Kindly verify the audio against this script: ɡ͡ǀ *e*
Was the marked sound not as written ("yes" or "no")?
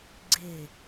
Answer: no